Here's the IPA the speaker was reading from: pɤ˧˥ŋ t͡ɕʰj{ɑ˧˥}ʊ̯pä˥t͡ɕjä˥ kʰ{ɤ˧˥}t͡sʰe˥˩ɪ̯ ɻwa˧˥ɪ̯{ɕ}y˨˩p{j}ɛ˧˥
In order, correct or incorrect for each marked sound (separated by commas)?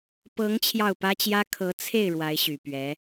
incorrect, correct, correct, incorrect